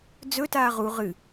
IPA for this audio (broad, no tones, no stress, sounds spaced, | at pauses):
d͡z ɵ t aː ʁ u ʁ ɨ